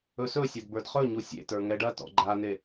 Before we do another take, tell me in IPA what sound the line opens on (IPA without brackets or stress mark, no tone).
ɵ